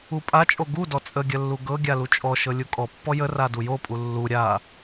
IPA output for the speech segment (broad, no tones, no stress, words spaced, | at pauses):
upʼat͡ʃʼo ɡudɔ t͡sʼəɡʲə lːuɡɤɡʲa lut͡ʃʼɔʃɤ lʲukʼɔpːɔ jəra dujopʼu lːu ɾʲa